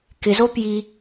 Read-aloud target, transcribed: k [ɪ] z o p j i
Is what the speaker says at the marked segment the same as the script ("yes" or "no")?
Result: yes